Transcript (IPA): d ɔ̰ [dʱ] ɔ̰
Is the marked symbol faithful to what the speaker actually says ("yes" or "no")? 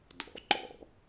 no